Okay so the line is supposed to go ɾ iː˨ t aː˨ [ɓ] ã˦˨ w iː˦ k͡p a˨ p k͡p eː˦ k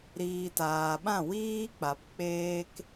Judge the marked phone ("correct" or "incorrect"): correct